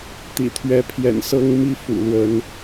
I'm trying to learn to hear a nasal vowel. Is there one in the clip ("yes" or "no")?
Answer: no